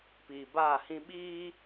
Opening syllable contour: low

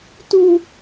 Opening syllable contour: high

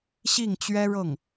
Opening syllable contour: falling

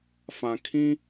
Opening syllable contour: low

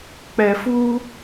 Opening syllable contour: low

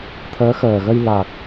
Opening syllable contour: rising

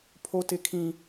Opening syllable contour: high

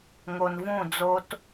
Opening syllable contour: low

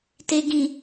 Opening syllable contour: low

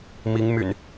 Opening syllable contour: rising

